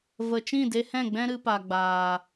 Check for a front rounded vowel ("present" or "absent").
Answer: absent